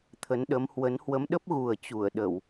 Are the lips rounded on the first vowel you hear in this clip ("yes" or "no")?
no